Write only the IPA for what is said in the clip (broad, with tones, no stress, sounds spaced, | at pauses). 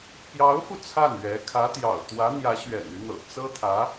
p j ɑ˧˥ ʊ̯ f u˧ t͡sʰ a˥˩ n ɥ ɛ˧˥ kʰ ä˧˥ t̪ j ɑ̰˨˩ ʊ̯ t̪ w ä˧˥ n̪ j ä˧˥ ɕ ɥ ɛ̰˨˩ n y˦ n̪ ɤ̰˨˩ t͡s ɤ˥ t̪ʰ ä˧˥